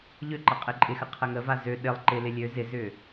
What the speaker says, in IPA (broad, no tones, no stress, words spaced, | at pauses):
ʎøǃɐ qʼɪǃʼɪxə qʰəŋəva zø ɗɪlˠ ǃɪlɪ lʲø zɪzʏ